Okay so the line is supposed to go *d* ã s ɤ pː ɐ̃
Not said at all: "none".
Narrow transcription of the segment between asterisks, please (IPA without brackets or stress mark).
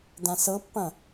d